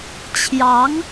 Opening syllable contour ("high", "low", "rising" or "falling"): rising